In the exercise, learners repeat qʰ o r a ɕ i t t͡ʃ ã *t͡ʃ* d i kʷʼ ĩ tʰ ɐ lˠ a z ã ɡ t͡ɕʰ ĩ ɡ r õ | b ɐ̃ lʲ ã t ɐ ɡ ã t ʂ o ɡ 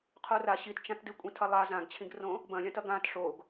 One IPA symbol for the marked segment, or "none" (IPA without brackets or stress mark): t